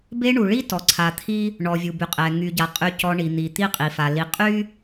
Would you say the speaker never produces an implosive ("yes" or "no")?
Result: yes